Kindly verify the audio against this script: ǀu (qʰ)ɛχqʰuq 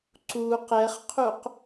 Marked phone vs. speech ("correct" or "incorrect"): incorrect